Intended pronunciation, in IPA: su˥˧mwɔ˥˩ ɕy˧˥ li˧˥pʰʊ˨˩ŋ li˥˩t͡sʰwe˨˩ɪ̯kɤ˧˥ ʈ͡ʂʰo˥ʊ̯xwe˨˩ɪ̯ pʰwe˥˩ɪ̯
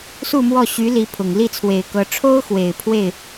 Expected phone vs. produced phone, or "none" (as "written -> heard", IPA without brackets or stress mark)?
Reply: none